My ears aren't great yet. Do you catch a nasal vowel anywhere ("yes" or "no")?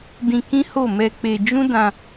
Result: yes